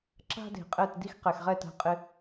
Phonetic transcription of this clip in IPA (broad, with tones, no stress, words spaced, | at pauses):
ǁa̤˧ de̤˨qʼɛ˦˨tdi˦x qɛ˨xʁɛ˦˨t a̤˧qʼɪ˧